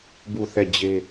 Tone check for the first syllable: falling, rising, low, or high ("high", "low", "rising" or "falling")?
falling